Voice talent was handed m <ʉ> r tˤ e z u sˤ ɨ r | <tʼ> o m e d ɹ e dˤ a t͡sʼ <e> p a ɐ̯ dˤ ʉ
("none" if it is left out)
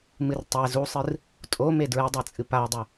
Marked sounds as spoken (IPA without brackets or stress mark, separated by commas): ɨ, tʼ, ɨ